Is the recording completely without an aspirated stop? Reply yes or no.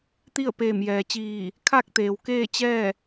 no